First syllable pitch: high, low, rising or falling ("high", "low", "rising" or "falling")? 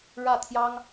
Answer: falling